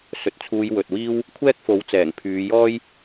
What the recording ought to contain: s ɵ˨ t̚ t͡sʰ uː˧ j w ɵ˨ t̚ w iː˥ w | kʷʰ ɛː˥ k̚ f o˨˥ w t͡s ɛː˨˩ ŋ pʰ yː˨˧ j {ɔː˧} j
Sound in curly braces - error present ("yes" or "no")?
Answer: yes